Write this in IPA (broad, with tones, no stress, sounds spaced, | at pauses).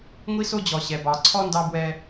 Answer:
ŋʷ i˥ s o˥ d͡ʑ ɔ˩ ɕ ɛ˩ b ɑ˩ ǀʰ ɔ˥ n d ɑ˧ b w ɛ˧